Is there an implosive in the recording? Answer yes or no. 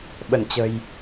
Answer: yes